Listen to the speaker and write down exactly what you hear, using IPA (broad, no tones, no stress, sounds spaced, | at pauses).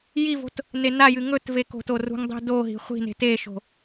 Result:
j i v o̤ t | n e n a j ɨ ŋ ɵ t v e k o̤ t o r ṳ ŋ dˤ i̤ d o ɦ i̤ χʷ i̤ n e̤ t e ʃ o̤